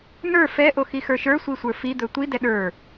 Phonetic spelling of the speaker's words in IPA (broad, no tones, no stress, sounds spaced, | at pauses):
n ə˞ f ɛ ʔ o x i x ə˞ ʃ ə˞ sʷ i sʷ ə˞ f i d̪ ɵ tʷ i d ɛ ɗ ə˞